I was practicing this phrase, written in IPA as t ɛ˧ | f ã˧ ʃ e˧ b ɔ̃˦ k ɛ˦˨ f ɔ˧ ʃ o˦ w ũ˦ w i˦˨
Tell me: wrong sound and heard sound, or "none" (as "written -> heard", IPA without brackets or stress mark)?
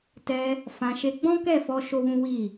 b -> ɡ͡b